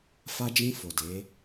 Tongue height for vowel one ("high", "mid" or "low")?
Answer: low